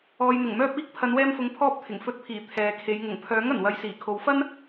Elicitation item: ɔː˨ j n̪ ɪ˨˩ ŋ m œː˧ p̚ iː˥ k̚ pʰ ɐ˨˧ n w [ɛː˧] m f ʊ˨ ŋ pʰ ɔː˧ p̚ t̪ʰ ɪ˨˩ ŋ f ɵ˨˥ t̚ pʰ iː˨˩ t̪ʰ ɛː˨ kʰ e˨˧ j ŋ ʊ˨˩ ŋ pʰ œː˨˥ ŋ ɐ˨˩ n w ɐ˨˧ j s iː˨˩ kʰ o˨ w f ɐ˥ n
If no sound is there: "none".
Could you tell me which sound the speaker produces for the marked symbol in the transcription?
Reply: ɛː˧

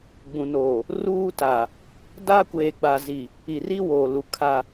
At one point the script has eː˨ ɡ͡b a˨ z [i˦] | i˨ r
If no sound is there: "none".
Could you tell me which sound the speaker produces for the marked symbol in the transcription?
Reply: i˨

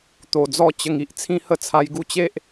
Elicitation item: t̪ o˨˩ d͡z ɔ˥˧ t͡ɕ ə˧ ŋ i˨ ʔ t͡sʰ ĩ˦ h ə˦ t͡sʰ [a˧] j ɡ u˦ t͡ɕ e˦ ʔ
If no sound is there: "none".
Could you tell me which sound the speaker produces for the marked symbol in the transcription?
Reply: a˧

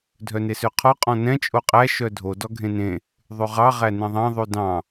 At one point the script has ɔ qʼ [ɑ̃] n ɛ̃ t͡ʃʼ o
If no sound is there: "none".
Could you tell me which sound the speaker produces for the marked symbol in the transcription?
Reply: ɔ̃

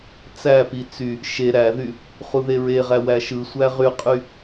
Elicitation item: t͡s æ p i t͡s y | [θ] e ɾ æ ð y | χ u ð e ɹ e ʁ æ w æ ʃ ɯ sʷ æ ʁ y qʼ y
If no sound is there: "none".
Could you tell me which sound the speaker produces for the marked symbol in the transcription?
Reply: ʃ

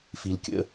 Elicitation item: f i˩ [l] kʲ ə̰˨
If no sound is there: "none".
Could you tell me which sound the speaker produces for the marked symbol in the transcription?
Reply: l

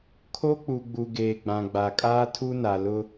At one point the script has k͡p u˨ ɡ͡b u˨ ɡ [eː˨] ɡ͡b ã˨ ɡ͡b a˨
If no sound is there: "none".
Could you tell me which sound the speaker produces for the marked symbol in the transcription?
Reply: eː˨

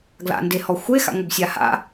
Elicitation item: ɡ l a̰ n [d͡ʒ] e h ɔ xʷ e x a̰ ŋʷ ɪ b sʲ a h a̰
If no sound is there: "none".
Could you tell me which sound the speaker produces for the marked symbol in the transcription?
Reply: d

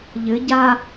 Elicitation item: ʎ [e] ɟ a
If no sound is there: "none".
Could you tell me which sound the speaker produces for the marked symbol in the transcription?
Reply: ɘ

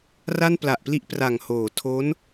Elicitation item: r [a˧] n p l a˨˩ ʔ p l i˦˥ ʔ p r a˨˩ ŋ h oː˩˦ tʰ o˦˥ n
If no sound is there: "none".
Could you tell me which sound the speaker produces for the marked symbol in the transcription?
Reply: a˥˩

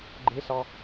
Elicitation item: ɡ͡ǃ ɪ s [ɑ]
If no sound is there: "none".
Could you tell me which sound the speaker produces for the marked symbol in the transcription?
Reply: ɑ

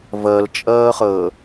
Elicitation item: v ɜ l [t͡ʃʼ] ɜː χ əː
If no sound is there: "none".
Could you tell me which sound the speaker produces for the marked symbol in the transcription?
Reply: t͡ʃʼ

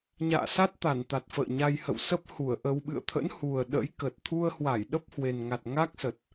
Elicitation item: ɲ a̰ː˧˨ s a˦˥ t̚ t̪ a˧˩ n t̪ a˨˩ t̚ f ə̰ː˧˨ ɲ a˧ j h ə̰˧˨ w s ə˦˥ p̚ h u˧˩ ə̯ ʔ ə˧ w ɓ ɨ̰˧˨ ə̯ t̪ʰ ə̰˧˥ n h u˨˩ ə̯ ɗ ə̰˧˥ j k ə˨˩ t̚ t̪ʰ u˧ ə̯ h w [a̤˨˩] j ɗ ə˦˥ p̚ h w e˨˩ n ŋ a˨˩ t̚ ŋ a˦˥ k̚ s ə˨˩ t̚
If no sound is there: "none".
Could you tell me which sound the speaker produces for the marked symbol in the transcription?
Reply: a˧˩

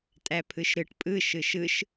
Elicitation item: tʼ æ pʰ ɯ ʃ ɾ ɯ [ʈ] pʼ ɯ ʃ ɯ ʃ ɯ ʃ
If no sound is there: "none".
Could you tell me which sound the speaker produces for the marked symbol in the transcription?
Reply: ʈ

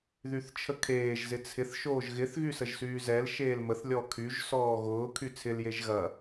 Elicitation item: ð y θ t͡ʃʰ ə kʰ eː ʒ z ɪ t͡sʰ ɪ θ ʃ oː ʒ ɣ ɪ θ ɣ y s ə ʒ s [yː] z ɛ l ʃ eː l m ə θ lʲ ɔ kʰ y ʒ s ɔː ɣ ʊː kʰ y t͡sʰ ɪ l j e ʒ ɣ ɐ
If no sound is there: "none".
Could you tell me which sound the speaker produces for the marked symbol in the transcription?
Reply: yː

